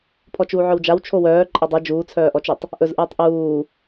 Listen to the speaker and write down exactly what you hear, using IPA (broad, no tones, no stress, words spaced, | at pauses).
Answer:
pʰɔt͡ʃuːʕœwd͡ʒaw t͡ʃʰowœː ǃʼadˤɯ d͡ʒuːt͡sʰœːʔɔt͡ʃʉtˤ | ʔɵzʔɯːtˤ ʔuː